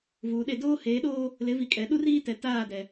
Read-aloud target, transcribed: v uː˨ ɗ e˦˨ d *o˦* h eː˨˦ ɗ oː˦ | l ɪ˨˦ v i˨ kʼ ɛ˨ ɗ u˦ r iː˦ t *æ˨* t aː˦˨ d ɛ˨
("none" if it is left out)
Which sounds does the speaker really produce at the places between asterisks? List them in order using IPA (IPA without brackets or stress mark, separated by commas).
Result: oː˦, ɛ˨